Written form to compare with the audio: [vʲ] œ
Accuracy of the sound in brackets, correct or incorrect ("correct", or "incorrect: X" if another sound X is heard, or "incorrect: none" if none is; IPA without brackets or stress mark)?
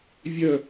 correct